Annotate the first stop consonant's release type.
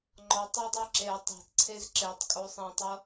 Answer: click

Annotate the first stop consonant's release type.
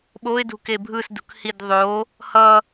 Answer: implosive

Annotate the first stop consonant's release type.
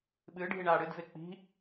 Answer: implosive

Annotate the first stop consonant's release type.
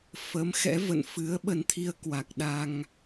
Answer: implosive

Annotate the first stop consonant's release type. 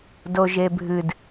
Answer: plain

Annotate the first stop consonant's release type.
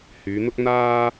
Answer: plain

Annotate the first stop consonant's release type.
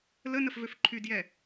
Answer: click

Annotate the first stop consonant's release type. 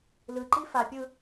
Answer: click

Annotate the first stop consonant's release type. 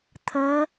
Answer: aspirated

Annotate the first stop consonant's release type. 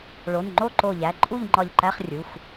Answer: click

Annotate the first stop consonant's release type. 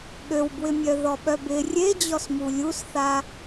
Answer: implosive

